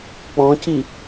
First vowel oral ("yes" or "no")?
no